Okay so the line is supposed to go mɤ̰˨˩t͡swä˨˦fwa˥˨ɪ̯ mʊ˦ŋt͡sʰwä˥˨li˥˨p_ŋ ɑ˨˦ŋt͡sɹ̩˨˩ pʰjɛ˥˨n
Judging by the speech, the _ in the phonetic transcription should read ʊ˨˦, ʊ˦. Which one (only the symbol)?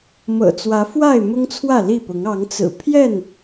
ʊ˨˦